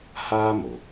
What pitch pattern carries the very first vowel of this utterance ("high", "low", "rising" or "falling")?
high